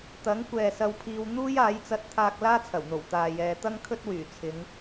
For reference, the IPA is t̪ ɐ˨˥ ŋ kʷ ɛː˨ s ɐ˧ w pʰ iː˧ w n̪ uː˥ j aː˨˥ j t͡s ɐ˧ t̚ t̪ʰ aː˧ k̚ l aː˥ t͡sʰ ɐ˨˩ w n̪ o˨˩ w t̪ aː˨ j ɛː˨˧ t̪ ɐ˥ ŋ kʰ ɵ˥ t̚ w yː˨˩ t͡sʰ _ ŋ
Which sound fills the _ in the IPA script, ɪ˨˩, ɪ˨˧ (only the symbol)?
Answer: ɪ˨˧